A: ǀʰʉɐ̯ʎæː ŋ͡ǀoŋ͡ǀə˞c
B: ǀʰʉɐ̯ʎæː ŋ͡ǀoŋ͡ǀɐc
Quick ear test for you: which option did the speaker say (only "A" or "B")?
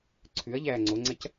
B